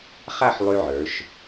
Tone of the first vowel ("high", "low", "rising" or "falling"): falling